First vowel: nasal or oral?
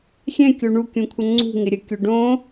nasal